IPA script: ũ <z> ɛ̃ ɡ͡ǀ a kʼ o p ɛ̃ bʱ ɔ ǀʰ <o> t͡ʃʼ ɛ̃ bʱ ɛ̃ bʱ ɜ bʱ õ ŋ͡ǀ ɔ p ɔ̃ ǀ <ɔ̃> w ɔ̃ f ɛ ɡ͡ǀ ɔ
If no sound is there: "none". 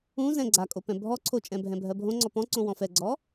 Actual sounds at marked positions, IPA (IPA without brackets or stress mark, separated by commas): z, o, õ